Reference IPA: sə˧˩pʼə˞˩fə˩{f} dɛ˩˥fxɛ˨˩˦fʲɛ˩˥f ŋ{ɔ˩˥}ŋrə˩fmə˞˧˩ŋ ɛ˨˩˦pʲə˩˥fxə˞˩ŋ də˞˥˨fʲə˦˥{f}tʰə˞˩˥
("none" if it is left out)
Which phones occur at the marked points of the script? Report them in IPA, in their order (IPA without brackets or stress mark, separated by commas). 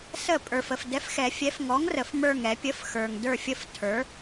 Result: f, ɔ˩˥, f